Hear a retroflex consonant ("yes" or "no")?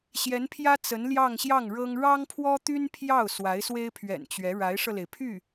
yes